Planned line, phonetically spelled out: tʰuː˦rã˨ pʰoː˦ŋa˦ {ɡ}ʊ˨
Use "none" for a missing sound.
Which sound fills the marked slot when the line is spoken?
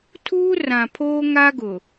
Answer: ɡ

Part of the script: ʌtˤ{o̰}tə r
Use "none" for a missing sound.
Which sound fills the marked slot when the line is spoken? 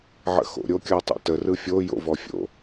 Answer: o̰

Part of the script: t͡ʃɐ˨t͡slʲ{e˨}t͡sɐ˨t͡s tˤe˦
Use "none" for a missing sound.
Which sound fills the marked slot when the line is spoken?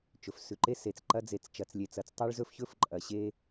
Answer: e˨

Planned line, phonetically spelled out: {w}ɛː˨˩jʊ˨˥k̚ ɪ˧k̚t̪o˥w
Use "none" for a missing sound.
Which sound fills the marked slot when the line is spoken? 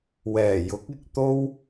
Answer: w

